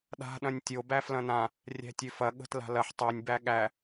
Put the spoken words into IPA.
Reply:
ɗ a̤ ɗ ɐ̃ nʲ tʲ o b æ f l ɐ̃ n ã | rʲ æ̤ tʲ ø f ɐ ɠ ə̤ t l a̤ l ɐ ħ tˤ o nʲ b æ ɠ æ

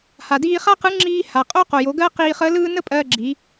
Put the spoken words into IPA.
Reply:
h a˩ d iː˧ χ a˥ q ɯ˧˥ ŋ͡ǁ iː˧ h a˩ qʼ o˥ q o˩ j o˩˧ ɡ ɜ˥ q iː˧ χ əː˧˥ l ɯː˥ n ə˥ pʼ ɜː˧ ɡ͡ǁ i˩˧

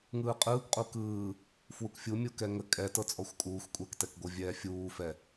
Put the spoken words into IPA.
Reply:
ŋ ɯː qʼ ɯː k qʼ u k ɯː | f w u k fʲ u mʲ u k ɛ ŋ ə kʼ ɛ t ɤ t͡sʼ ɔ xʷ kʼ uː xʷ kʷʼ ɛ k t ɛ k ɡʷ ɤ vʲ ɛː fʲ uː f ɛ

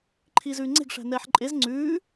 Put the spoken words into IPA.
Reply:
ǃʰ iː z ʉː ŋ͡ǀ e̤ ɡ ʂ æ̤ n ɛː ħ ǃʼ e z ŋ͡ǀ ʉː

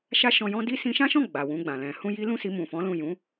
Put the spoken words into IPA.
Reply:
ʃ a˧ ʃ ɔ̃˨ j ɔ̃˧ d i˦ s ĩ˧ ʃ ã˦ ʃ ɔ̃˦˨ ɡ͡b a˨ w ũ˧ ɡ͡b ã˨ l ɛ̃˨ h ũ˧ j i˦ l ũ˦ s i˧ m ũ˨ f ɔ̃˨˦ l ũ˦˨ j ũ˨˦

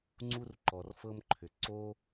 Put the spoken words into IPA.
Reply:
ŋ͡ǀ u˦ r ǃ ɔ˨ r f ɤ˦ m ǃʰ ʏ˨ ǀ o˦

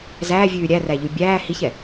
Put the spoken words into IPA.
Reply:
z æː vʲ ʉː ɾʲ æ r æ ʎ ʉ bʲ æː h i ç ɛ

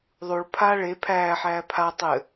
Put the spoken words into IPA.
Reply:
ðˤ u ɭ pʰ a ɭ e pʰ æː ħ æː pʰ a tˤ ɘ

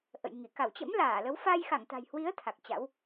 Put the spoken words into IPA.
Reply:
ʔ ə̰˧˨ j ŋ i˧˩ k a˧˩ w t͡ɕ ə̰˧˥ m l aː˧˩ l ə˨˦ w f a˧ j x a˧˩ ŋ t̪ a̤˨˩ j h w i˨˦ ə̯ t̪ʰ a˨˩ k̚ t͡ɕ a̰˧˥ w

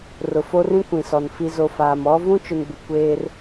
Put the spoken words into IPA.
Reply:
r ʊ˨ f o˦ r ĩ˦ kʷ ĩ˨ s ɔ˨ n f i˨ z o˨ f aː˨ m ɔ˦ v ũ˦ t͡ʃ ʊ˨ n b ɪ˨ kʷ eː˦ r

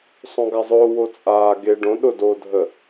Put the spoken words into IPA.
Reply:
sˤ õ ɡ a zˤ ʊː w o t͡sʼ aː ɡ e ɖ õ ɗ ʊ d oː dʱ ə

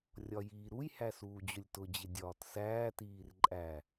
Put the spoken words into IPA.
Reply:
rʲ ɒ j iː ɾ u j h æ s uː d͡ʑ ʊ lʲ t ʊ d͡ʑ ɪ dʲ ɒː t s æː t iː r ǃʼ æ

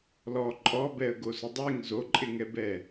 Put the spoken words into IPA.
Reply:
l ɔ ǃʼ ɔ b ɛ ə̯ ɡ o s ʊ dˤ e ŋ z o ǃʼ ɪ ŋ ɛ b ɛ

